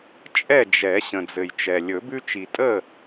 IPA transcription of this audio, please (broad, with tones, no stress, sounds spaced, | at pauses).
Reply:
t͡ʃʼ ɛ˥˨ d͡ʒ ɛ˨˩˦ ɕ ə̃˨ d͡z ɘ˨ j t͡ʃ ɛ˨ lʲ ɵ˨˩˦ b ʉ˦ t͡ʃ i˨ tʼ ə˥˨